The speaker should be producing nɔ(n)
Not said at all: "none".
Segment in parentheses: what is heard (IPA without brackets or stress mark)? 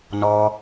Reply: none